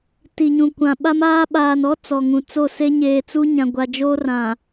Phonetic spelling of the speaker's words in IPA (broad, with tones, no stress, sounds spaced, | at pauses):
t i˨ ɲ ũ˨ kʷ ã˨ ɓ a˦ m aː˦ ɓ aː˨ n ɔ˦ t͡s ɔ˨ ŋ ũ˨ t͡s o˦˨ s e˦ ɲ eː˨ t͡s u˦ ɲ ã˨ ɡʷ a˨ d͡ʒ oː˦ r ã˨